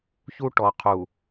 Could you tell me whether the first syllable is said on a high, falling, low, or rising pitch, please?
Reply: high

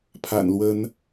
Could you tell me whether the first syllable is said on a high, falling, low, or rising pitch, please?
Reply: low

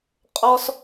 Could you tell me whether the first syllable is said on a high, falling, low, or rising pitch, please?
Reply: high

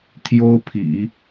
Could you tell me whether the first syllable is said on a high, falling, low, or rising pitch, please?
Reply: high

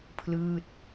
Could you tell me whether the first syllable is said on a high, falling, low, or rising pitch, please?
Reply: falling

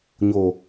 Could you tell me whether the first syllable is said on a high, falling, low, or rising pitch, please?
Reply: low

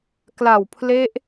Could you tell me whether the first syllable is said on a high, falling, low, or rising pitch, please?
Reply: low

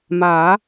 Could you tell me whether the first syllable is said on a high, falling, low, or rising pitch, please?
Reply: rising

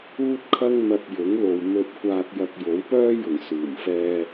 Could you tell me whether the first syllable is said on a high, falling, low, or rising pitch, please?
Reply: high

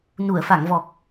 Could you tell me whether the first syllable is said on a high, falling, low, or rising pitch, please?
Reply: low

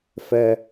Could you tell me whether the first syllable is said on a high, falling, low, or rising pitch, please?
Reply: high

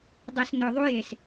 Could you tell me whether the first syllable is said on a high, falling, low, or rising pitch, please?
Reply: low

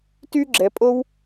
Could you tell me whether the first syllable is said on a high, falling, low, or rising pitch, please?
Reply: high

